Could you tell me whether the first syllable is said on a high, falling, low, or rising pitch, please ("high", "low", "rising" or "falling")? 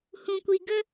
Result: low